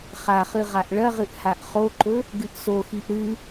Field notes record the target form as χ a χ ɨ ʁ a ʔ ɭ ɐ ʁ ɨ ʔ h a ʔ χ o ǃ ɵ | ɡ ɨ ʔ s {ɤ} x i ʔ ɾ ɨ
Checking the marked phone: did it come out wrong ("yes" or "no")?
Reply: yes